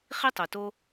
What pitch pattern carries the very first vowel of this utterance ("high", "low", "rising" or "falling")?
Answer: high